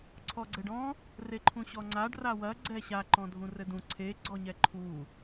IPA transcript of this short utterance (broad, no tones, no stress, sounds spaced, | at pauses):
ǀʰ ɔ ɡ͡ǀ ɘ ɖ ɔ̃ | r e ǃʰ ũ ɕ ɔ ŋ͡ǀ a ɖ r a w ɐ ɡ͡ǀ ɛ ɕ a ǃ ɔ̃ dʱ ũ r ɘ d ũ ǀʰ e ɡ͡ǀ ɔ ɲ ɛ ǃʰ u